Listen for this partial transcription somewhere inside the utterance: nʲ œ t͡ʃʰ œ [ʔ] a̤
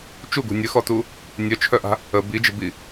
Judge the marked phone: correct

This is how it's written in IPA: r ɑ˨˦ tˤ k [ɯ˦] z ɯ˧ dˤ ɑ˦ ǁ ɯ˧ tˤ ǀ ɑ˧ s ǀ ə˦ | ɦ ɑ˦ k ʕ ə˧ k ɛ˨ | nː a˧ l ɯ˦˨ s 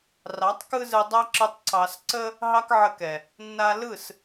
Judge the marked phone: correct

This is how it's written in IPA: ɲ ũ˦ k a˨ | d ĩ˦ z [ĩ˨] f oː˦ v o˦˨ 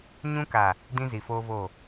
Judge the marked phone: incorrect: i˨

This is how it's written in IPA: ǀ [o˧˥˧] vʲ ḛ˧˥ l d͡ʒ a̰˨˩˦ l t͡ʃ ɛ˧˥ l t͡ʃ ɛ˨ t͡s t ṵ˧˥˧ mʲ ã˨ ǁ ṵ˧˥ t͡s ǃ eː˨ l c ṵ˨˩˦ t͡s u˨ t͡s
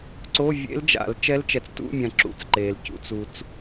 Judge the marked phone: correct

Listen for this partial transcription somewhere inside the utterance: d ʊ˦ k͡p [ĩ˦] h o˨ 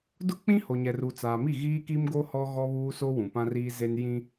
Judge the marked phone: correct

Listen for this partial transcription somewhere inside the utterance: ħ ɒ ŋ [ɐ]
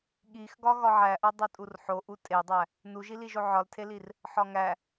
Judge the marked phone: incorrect: æ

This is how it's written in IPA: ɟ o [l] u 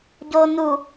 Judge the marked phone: incorrect: n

